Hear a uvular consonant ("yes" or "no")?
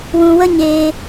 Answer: no